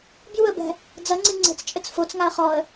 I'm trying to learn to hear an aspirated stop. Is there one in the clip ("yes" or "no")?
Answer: no